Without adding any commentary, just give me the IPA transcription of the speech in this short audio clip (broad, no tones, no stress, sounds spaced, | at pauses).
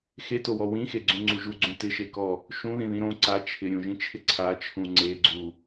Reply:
x e t o w ɔ w ĩ x e ɡ͡ǀ ũ ŋ͡ǀ u ʒ u ɡ͡ǀ ũ t ɪ ʃ e k ɔ | ʃ ũ ð ĩ ð ĩ ɾ õ ǀ a t͡ʃʰ ɪ ɾʲ ũ ʒ ĩ t͡ʃʰ ɪ ǀʰ a t͡ʃʰ ũ ŋ͡ǀ e ɡ͡ǀ u